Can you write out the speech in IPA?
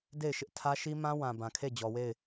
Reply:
de˦˨ɪ̯ʃɪ˦ʔ tʰä˦ʃi˦mã˦ wã˨bã˨kʰe˦˨ d͡ʑɔ˨we˦˨ɪ̯

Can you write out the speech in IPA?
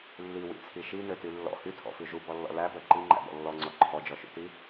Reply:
lːiwḭt͡sʰi ʃinøty lːɔ̰ hytʰɔ̰fʉ ʒubɔlːɔ̰ læbœ ǃiŋ͡ǃæ̰bɔ̰ lːɔŋ͡ǀɔ ǃʰɔd͡ʒɔʃṵti

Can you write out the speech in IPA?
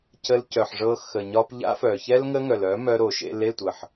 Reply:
cə˧lcœ˨ħʐɤ˧ xə˨ɲɒ˧p ʎa̰˦fœ˨çɛ˦l ŋə˦ŋœ˨lœ˨˦ mœ˧ɾo˨ʃḛ˧l e˦˨tʷə˨ħ

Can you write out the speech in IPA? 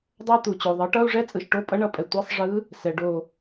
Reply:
dˤa˥t̪u˨t͡ɕo˨ ðˤɯ˩˥ʈʌ˧˥˧u̯ʐɛ˥ t͡sʼɯ˨ʃʈo˧˥˧ pʼʌ˧˥ɳʌ˩˥pʼɛ˨ tʷe˧˥˧sˤʐɯ˧˥ | sɛ˨ɖo˦˨

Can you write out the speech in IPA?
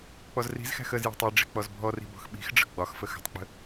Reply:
k͡pɔzri̤zxæ̤x əzjɔ̤tˤ i ɖ͡ʐi̤k͡pɔzbʱɔri̤ bɔ̤xɓi̤xɖ͡ʐə̤ ɡ͡bɒxfə xə̤tˤk͡pə̤

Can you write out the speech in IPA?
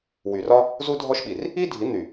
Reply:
wy˨rɒ˦ | zu˦dʱɔ˦ʃɓi˨r | i˦dʱi˨˦n̪y˨

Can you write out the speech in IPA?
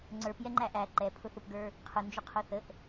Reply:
ŋ͡ǀə˞p jɛŋ͡ǃæʔæ ǃɛ pʰʊθʊpɡə˞ | qʰʊnd͡ʒʊqʰʊ θəʔ

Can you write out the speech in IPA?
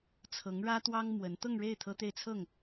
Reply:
t͡sʰɤ˧˥ŋɻä˥t̪wɑ˥ŋ mwə˧˥n t̪ɤ˥˧ŋɻe˥˩ɪ̯ t̪ʰɤ˥t̪e˥˧ɪ̯t͡sʰɤ˥˩ŋ

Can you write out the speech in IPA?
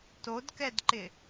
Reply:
todkɛdǃɪ

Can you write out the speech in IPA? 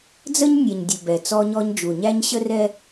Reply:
d͡zə˦ɲnʲɛ˨ɲdʲə˨ bɛ˨t͡sɔ˦ɲɔ˦ɲ d͡ʒu˨ɲæ˦ɲ ɕə˦rɛ˦

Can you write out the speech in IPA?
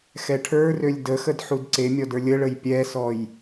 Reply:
xɛʈʰə˞rølʲ dəxəd ħudǀemʲɔd ə˞lʲəɭəj pʲɛsɔj

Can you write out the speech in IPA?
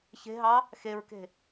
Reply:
çe̤ɦɑ | xeɹke̤

